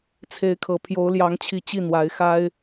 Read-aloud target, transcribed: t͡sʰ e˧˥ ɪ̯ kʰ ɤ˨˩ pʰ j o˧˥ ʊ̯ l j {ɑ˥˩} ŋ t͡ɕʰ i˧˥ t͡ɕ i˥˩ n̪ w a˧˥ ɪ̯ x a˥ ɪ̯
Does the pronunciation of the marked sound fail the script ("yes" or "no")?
yes